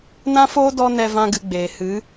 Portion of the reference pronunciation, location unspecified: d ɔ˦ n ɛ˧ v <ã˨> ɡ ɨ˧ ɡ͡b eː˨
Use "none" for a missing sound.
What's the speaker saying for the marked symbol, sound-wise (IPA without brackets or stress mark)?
ã˦